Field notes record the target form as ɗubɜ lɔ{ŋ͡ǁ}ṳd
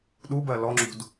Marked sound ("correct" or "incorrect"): correct